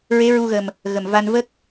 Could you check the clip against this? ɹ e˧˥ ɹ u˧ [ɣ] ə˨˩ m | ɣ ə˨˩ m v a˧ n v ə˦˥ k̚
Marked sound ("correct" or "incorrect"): correct